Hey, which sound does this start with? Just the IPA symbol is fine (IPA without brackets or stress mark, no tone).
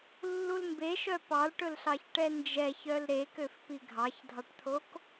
lː